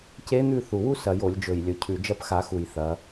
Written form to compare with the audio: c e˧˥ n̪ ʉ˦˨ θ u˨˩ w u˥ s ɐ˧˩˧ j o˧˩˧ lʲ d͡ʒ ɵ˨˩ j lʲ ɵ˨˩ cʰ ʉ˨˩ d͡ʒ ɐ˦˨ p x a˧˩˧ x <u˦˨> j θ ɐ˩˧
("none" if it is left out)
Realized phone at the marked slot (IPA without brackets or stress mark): u˨˩